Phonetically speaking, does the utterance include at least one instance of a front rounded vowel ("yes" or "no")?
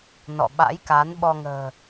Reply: no